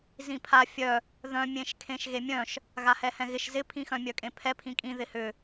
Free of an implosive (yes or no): yes